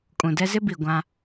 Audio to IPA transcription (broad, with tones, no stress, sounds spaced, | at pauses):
kʼ ũ˨ d ɛ˦ z ɪ˦ b i˨ ɡʷ ã˦